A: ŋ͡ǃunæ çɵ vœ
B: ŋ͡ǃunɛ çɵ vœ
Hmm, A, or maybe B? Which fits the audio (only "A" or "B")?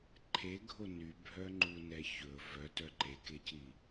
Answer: B